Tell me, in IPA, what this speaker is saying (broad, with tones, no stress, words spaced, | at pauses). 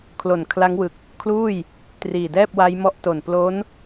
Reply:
kʰlo˨˩nkʰla˦˥ŋwɯ˨˩k̚ | kʰluː˥˩j | triː˨˩dɛː˥˩p̚wa˦˥jmɔ˦˥ʔ to˨˩nplo˦˥n